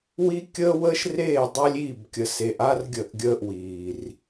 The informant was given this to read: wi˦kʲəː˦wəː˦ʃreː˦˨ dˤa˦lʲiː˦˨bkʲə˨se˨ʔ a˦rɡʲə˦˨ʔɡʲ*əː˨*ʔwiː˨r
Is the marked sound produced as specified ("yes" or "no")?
no